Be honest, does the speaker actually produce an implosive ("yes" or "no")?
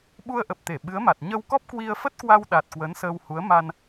yes